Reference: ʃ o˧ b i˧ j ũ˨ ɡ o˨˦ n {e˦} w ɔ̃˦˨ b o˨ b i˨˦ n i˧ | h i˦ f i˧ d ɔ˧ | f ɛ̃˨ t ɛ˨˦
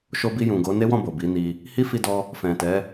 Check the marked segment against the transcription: correct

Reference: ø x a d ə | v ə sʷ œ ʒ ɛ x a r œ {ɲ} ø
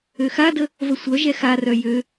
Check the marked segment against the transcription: incorrect: j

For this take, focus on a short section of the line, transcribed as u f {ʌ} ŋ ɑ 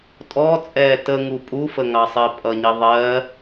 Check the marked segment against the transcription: incorrect: ə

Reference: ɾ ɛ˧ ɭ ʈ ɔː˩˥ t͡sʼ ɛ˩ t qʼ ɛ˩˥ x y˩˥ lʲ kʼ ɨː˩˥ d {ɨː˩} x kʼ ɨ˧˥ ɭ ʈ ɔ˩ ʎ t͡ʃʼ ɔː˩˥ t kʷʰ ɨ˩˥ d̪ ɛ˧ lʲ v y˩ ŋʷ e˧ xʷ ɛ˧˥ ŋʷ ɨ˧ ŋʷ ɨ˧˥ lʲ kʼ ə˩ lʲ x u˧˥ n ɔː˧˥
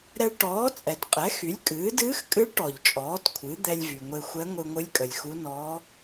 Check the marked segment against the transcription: incorrect: ɨː˧˥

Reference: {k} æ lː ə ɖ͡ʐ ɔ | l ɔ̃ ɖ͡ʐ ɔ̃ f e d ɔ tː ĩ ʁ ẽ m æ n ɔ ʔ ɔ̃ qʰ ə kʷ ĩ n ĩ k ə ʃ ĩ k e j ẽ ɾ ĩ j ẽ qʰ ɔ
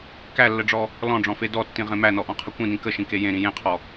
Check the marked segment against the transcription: correct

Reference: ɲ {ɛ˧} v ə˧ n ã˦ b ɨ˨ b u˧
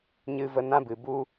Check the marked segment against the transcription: incorrect: ɨ˧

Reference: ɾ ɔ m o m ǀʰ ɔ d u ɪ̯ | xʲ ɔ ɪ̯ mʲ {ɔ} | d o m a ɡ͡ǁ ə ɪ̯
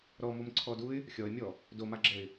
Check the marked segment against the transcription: correct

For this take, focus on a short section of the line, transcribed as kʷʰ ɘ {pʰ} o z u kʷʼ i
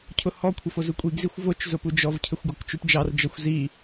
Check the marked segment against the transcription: incorrect: f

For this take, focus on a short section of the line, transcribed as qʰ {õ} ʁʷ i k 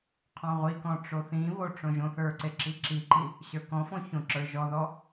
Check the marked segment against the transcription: incorrect: ɔ̃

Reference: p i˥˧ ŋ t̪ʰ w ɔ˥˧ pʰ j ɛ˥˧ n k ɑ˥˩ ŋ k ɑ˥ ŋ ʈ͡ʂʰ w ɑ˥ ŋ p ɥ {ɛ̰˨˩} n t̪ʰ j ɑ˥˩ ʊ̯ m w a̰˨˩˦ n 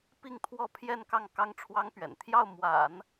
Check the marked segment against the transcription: correct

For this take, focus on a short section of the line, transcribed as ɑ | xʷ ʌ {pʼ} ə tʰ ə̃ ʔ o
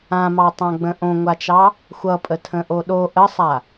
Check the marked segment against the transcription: correct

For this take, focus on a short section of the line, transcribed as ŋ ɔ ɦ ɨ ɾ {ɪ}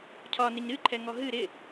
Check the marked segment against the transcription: correct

